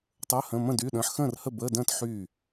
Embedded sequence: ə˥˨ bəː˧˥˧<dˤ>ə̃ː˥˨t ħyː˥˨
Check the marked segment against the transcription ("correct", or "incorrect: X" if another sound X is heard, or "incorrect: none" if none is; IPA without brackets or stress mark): incorrect: d